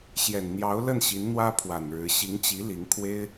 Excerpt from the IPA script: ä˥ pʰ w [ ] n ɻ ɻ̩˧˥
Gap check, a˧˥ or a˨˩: a˨˩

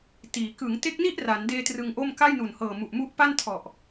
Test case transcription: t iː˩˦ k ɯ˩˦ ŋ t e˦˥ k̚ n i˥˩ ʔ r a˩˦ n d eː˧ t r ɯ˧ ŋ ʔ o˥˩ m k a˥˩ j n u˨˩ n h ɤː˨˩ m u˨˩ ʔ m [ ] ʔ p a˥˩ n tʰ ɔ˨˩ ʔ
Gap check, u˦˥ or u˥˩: u˦˥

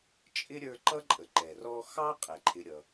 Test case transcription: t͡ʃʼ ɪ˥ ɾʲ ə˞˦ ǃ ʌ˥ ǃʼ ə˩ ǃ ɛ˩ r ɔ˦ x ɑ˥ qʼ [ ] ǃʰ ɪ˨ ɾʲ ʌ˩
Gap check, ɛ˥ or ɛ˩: ɛ˩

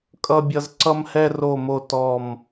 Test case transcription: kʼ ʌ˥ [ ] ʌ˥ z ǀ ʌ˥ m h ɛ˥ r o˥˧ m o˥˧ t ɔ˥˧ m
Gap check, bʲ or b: bʲ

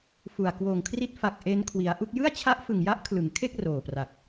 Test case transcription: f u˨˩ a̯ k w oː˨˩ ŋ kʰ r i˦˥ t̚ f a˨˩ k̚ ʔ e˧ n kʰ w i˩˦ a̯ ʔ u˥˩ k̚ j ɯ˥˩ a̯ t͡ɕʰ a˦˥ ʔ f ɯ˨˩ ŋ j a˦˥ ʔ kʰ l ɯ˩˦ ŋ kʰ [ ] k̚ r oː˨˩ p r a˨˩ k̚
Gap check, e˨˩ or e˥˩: e˥˩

